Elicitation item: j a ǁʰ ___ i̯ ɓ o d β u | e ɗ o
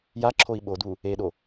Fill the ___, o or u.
o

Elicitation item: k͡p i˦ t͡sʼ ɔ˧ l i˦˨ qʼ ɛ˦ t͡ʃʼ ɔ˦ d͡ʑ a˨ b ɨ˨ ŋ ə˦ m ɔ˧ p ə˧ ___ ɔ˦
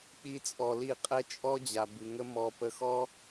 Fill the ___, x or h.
x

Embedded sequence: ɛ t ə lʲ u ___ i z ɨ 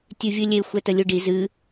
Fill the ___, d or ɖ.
ɖ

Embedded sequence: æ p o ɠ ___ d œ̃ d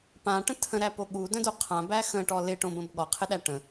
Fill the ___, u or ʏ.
u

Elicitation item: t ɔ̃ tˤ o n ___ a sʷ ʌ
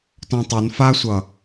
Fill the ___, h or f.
f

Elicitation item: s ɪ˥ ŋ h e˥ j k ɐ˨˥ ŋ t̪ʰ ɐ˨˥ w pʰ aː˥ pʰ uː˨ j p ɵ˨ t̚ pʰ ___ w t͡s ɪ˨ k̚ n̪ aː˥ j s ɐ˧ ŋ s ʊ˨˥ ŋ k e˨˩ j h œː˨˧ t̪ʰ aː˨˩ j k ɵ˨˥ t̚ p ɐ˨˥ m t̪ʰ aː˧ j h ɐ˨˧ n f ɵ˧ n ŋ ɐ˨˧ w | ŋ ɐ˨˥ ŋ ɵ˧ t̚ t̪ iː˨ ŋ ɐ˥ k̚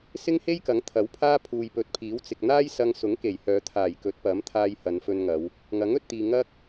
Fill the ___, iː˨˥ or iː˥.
iː˨˥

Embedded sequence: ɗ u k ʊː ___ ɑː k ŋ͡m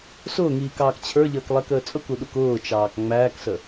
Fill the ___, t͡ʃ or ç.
t͡ʃ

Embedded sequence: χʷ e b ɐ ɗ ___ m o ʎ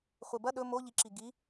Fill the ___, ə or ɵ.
ɵ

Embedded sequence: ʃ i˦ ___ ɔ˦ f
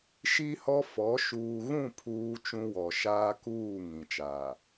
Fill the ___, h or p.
h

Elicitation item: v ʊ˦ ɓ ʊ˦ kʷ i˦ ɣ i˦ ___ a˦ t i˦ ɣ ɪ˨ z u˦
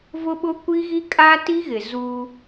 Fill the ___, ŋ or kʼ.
kʼ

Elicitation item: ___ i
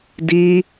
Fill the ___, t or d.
d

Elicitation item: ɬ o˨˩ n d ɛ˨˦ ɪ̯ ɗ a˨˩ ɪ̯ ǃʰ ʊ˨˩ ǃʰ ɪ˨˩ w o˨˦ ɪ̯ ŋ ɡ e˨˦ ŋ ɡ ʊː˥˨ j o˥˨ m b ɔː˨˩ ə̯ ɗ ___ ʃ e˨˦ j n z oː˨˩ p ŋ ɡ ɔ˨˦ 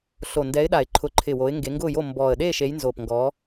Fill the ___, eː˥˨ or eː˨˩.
eː˥˨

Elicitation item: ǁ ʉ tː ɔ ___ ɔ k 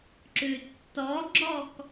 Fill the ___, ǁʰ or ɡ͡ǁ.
ɡ͡ǁ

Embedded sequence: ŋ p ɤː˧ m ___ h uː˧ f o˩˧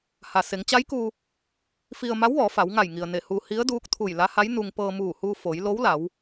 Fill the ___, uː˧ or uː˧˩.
uː˧˩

